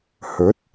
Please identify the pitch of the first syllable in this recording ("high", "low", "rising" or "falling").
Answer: rising